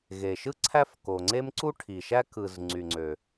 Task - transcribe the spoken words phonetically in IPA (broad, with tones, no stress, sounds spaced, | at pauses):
ɣ e˩ ʃ ɯ˥ ǀʰ æ˥ f k o˩ ŋ͡ǀ e˥ m ǀ u˥ ʈʰ i˩ ʃ æ˥ k ɯ˩ z ŋ͡ǀ y˩ ŋ͡ǀ ø˩